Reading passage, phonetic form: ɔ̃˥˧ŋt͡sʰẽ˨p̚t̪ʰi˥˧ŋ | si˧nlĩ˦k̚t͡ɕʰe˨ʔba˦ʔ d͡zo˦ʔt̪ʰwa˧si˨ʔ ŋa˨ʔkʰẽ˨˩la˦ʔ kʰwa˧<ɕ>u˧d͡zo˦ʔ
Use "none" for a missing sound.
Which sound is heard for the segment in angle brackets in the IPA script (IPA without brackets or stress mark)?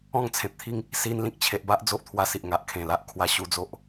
ɕ